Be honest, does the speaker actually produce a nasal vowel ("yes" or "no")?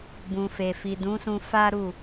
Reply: yes